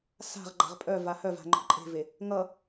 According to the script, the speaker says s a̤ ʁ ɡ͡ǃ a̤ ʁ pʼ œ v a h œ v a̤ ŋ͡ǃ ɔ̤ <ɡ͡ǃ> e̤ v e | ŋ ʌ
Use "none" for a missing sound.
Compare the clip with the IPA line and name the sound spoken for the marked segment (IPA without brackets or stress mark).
ǃʼ